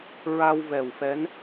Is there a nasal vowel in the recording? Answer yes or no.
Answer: no